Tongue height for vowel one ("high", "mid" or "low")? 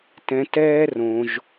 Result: mid